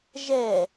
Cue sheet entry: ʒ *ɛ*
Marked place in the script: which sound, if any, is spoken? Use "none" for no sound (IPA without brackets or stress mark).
ɛ